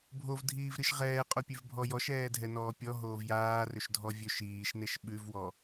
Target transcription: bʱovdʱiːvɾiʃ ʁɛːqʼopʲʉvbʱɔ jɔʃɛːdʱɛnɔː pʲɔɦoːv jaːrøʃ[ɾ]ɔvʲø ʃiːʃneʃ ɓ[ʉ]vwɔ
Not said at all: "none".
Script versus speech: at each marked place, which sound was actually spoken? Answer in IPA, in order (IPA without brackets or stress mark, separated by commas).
dʱ, ʉ